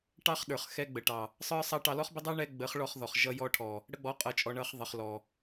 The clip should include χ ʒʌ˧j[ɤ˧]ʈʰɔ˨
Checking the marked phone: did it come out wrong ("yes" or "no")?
yes